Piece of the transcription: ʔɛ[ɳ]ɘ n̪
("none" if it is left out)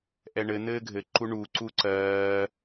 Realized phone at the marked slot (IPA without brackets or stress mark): ɳ